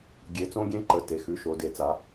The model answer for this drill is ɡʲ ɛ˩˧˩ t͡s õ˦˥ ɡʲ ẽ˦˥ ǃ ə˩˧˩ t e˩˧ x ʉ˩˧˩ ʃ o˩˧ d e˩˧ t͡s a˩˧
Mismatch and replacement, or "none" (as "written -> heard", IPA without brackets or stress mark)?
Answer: ɛ˩˧˩ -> e˩˧˩